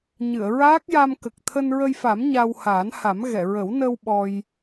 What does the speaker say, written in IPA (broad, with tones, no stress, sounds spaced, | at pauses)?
ɲ ɨ˨˩˨ ə̯ ɹ aː˦˥ k̚ j a˧ m k ə˨˩ k̚ t̪ʰ əː˧ n ɹ ə˧ j f a˨˩˦ m ɲ a˧ w h aː˨˩˦ n h a˨˩˦ m ɣ ɛ˨˩˨ ɹ ə˨˩˦ w n ə˧ w ɓ ɔ˧ j